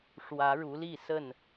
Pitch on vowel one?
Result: rising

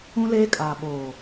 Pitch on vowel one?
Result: high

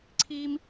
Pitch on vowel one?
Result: high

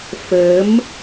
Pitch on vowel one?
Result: rising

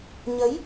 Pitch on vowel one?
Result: rising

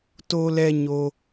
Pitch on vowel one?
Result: high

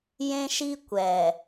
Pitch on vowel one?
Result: high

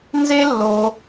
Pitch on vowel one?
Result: high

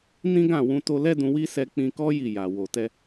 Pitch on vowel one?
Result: high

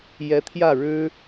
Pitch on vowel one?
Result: rising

